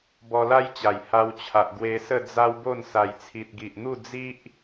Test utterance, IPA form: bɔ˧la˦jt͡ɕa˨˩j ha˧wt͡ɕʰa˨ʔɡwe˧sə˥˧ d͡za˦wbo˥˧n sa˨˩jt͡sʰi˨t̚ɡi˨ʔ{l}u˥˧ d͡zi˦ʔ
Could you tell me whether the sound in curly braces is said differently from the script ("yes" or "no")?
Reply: yes